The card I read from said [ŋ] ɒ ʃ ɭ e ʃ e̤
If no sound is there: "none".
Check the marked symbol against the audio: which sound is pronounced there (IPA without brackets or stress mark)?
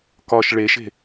k